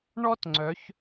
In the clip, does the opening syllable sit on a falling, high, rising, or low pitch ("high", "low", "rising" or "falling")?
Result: high